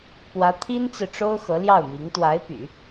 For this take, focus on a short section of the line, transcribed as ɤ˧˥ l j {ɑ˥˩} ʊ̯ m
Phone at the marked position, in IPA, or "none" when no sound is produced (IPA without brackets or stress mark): ɑ˥˩